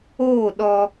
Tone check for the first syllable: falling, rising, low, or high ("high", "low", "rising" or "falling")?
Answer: falling